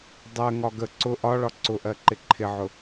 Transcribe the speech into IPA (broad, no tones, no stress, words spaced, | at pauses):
dˤɜŋɒ ɡə ǀʊ ʔɒɭɒ ǀʊʔɜǃɪ ǃʰɪʕʊ